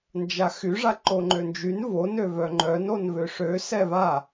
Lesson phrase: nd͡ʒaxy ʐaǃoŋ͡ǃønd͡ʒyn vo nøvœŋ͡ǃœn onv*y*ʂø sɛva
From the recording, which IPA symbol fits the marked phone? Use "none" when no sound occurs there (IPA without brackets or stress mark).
ø